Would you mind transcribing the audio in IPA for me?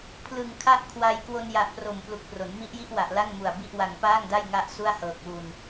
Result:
pʰlɯ˨˩ŋkʰa˥˩ʔkʰwa˧j kwo˧nja˨˩ʔpro˨˩m plu˨˩k̚pro˩˦n mi˦˥ʔji˥˩ʔwa˨˩ʔ la˥˩ŋmu˨˩a̯bi˥˩ʔwa˧ŋ paː˥˩ŋda˥˩jŋa˦˥ʔ su˥˩a̯hɤː˨˩k̚ wu˧n

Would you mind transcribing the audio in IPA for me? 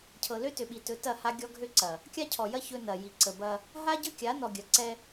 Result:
cʰɤ˨lø˦tø˨ ɓi˨tɵ˨˦ tɐ˦˨ha˦ ɡʲɔ˦ ɡʱø˦ǀɐ˨ | kʲa˦cʰɔ˨jɐ˦ çɵ˦nɐ˨ ji˨ǀə˨ bɐ˦ | ɦa˦ɟə˦ kʲa˨˦nɔ˨ ɡʲɐ˨ǀɛ˦

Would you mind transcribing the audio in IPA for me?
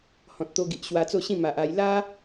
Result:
hɔ̃˨t̚t̪o˧ɡi˨ʔ ɕwa˧t͡so˥˧ɕĩ˥˧ ma˨ʔa˧j la˦

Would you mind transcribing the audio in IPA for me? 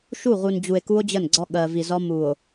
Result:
ʃu˦˨ʁu˨nd͡ʑu˨e̯ ku˦o̯d͡ʑə˦˨nɡ͡ǀɒ˦ ɠɜ˨ vi˨zɒ˦ mu˨o̯

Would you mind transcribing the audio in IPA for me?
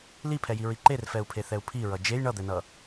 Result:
lipʰɛjiɹi ǃerfɛu̯pʰeθɛu̯ pʰiɹʌ d͡ʒej ɳʌd̪ɛnʌ

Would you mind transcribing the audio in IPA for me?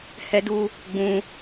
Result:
hɛ˦du˦ | ɡ͡bũ˦

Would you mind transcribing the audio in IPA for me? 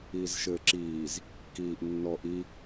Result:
iːzʃɘːǁiːz | kiːʔnːɔːʔi

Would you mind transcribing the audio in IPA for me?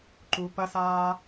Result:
ǃu pɐsaː

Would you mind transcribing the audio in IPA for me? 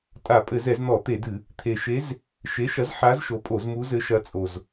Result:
tʼa˧˩˧pʼɘ˧˩˧zɛ˧˩˧z n̪ɔ˧˩˧t̪e˧˩˧dɨ˧˩˧ | t̪ʰe˨˩ʃe˧˥z | ʃe˩˥ʃɐ˩˥z ħa˧˥zʃo˩˥pʼo˧˩˧z mu˧˥zɘ˧˥ʃɐ˧˥t͡sʼo˨˩z

